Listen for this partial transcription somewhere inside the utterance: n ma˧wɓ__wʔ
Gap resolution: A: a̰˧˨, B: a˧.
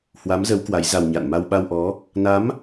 B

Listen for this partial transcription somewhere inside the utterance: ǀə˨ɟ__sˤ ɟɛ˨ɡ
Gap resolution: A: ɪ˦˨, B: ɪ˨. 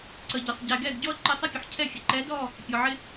B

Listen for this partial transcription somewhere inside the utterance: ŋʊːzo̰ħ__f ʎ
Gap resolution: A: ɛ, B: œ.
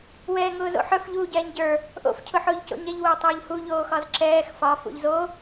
B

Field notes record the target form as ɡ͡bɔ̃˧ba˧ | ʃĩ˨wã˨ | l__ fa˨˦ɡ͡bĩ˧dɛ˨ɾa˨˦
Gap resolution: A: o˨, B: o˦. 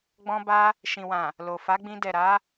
A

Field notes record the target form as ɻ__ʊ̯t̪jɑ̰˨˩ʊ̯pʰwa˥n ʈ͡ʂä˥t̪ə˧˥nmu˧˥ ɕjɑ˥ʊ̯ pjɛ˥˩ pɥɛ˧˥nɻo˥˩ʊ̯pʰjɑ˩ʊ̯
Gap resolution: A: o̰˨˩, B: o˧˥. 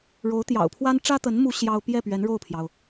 B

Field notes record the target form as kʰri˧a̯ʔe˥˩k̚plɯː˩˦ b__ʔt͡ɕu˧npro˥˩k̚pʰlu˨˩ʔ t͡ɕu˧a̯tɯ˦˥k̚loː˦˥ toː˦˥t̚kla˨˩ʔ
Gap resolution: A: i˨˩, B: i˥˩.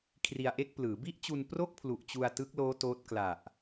B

